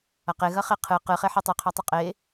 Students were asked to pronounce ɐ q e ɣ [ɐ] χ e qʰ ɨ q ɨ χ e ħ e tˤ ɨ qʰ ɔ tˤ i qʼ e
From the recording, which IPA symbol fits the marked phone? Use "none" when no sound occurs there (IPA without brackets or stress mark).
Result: ɐ